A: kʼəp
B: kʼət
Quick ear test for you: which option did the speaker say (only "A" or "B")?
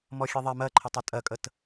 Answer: B